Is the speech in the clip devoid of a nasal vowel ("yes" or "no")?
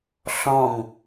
no